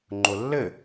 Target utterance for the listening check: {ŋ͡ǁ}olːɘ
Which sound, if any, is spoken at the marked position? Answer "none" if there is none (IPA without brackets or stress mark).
ŋ͡ǃ